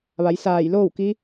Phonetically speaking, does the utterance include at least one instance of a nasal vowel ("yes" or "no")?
no